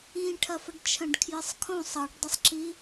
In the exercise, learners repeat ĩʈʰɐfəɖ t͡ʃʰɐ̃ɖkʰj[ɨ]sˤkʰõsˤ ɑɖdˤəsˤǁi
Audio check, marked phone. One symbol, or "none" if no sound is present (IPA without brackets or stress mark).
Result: ɨ